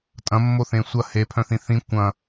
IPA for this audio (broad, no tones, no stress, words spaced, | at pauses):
tʼɐ̃mːoθẽ sʷɐ hepʰœ̃θĩ θĩ kʷɐ̃